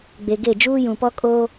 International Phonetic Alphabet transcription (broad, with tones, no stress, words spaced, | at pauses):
ɡ͡be˨ɡe˦˨ d͡ʒuː˦jũ˨pɔ˦ kʼoː˦